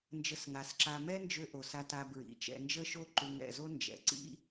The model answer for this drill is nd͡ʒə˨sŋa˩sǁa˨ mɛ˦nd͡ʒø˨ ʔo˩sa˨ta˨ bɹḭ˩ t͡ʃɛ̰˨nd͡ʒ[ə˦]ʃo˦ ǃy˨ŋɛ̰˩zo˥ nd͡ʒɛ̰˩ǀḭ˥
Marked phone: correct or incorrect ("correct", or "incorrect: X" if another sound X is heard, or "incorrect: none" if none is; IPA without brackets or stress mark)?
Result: correct